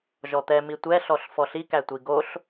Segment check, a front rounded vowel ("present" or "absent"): absent